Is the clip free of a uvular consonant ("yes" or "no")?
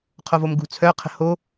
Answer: no